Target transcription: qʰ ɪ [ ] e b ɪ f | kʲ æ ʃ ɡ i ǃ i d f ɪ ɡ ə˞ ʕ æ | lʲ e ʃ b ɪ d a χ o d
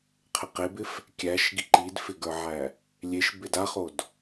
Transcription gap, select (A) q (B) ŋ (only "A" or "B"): A